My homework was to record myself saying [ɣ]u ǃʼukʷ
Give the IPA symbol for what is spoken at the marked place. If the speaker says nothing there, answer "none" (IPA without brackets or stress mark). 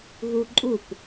ɣ